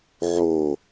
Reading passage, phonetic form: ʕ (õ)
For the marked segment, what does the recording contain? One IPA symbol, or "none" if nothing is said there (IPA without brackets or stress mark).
o